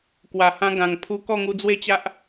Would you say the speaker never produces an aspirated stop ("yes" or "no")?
no